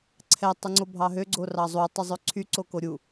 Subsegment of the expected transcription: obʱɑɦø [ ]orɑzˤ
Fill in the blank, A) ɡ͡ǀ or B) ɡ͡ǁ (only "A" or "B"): A